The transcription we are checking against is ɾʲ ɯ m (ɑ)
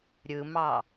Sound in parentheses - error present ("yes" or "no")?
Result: no